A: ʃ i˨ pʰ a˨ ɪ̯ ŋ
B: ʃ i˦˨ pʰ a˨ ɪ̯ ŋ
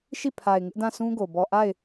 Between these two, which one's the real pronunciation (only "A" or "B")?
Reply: B